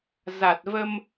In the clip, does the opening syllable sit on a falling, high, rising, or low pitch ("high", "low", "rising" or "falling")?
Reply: low